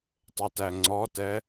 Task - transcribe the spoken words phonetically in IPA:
tˤ e t æ ŋ͡ǀ ɔ t ɛ

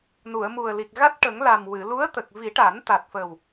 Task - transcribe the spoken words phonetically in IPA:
n u˨˩˨ ə̯ m u˨˩ ə̯ l i˨˩ k̚ ɣ a˦˥ t̚ ʈ ə˨˩˦ ŋ l a˨˩ m w ɨ˨˩˨ l u˧˥ ə̯ t̪ ə˨˩ k̚ v i˨˩˦ ʈ a˨˩˦ n t̪ a˨˩ t̚ f ə˨˩ w

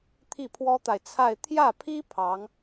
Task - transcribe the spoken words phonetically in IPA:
t̪ʰ i˥˩ pʰ w ɔ˥ t̪ a˨ ɪ̯ t͡sʰ a˥˧ ɪ̯ t̪ʰ j ä˥˩ pʰ i˥ pʰ ɑ˧˥ ŋ

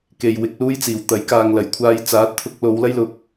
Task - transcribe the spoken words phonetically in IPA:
k e˨ j w ɪ˨˥ k̚ l uː˥ j t͡s iː˨˩ w t̪ ɐ˨˥ j k aː˨ ŋ l ɐ˨˩ j kʷʰ aː˧ j t͡s aː˨˥ t̚ t̪ʰ ʊ˧ k̚ l o˨˧ w l ɐ˥ j l ʊ˨˥ k̚

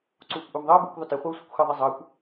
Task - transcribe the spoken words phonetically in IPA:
ǀ uː kʷ ʔ ʊː m ðˤ əː b uː kʷ ðˤ ʊ t ɪ χʷ ʌ u̯ sʷ ɪ kʷ x ə ðˤ i zˤ əː kʷ

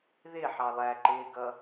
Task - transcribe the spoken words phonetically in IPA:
ð ɪ ħ ɑ lˠ æ ǃ ɪː ɡ ʌ

